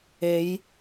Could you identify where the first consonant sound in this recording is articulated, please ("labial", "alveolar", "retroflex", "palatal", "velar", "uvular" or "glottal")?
palatal